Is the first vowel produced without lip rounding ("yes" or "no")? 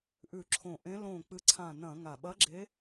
no